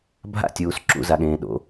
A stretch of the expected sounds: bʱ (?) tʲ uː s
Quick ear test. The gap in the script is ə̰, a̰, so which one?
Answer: a̰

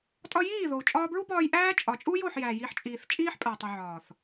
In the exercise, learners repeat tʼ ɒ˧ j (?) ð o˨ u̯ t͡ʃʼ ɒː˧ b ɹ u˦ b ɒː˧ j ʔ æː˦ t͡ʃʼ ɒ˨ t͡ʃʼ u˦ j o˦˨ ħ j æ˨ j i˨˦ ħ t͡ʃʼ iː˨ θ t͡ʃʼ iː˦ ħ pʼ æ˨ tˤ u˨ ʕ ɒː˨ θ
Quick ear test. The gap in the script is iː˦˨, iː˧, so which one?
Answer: iː˦˨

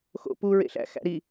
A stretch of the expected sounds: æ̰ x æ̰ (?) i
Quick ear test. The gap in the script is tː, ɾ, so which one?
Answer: ɾ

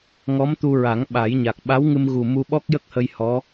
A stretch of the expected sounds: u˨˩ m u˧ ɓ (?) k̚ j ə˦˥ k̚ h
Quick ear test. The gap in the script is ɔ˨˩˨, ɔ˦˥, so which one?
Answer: ɔ˦˥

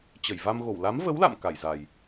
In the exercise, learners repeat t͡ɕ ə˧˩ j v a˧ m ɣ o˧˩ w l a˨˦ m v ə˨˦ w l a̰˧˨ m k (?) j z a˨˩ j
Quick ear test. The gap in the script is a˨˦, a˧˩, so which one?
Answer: a˧˩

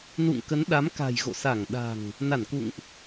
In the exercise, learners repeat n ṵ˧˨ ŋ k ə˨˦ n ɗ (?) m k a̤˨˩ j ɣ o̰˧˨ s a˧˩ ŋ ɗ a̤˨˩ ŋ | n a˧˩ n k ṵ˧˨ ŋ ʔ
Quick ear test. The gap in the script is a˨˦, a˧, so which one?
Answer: a˨˦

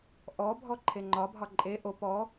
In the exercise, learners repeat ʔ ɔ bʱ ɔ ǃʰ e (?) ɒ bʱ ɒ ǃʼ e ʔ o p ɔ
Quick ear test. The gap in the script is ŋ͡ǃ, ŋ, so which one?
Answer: ŋ͡ǃ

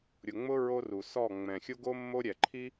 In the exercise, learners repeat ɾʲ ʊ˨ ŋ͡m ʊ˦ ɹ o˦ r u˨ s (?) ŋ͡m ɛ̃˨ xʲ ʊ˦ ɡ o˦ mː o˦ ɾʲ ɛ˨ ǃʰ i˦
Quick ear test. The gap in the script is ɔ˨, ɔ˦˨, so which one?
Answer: ɔ˦˨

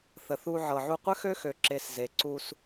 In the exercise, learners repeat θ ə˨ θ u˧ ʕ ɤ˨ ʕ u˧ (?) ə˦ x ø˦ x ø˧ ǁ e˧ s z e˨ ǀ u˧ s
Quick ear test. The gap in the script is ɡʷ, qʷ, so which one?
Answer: qʷ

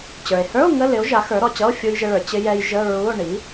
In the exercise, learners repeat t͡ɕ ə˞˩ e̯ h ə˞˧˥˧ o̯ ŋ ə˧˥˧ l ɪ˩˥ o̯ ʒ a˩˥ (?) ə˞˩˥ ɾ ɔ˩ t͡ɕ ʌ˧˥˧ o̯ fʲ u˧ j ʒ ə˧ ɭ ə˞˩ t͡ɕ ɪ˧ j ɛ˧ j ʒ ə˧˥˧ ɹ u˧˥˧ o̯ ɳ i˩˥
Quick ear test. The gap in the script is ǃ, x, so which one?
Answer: x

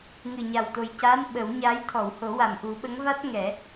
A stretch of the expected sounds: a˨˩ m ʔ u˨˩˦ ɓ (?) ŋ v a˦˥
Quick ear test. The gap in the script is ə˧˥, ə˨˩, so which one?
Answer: ə˧˥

